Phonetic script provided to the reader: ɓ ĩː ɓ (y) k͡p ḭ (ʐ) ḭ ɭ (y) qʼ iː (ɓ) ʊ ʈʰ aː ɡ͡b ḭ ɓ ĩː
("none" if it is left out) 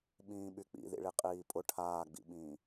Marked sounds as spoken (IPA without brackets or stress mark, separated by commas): y, ð, i, pʼ